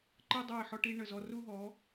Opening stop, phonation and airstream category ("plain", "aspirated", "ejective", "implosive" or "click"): click